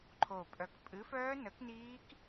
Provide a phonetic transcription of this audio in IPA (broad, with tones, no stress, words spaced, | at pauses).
ǃʰo˨˩pʼœ˨˩k pʼɨ˨˥fœː˦˥ nə˨˥kniː˦˥k